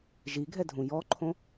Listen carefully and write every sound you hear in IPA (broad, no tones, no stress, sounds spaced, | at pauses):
ʒ i ɡʱ ɛ dʱ ũ j ɔ ǃʰ õ